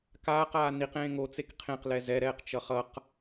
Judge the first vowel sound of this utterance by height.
low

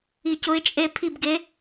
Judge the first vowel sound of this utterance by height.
high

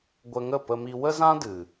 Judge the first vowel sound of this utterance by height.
mid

